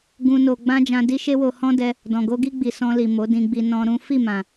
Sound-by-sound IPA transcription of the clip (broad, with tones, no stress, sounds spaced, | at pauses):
ɡ ũ˦ n o˧ ɡ͡b ã˦ d͡ʒ ã˧ d i˦ ʃ e˦ w o˧ h ɔ̃˦ d ɛ˧ | d ɔ̃˨ ɡ o˧ ɡ i˧ ɡ͡b i˨ s ɔ̃˧ l i˨ m o˨˦ d ĩ˧ ɡ͡b i˧ n ɔ̃˧ ɾ ũ˦ f i˦˨ m ã˨